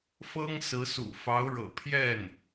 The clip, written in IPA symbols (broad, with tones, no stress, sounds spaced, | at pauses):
f ɤ˥ ŋ s ɹ̩˧˥ s ṵ˨˩ f ɑ˧˥ ʊ̯ ɻ ɤ̰˨˩ pʰ j ɛ˥˩ n